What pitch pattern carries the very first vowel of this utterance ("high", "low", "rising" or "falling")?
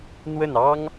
falling